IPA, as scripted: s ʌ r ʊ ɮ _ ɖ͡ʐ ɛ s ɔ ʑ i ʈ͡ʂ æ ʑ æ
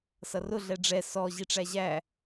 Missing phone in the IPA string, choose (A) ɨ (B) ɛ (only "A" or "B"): B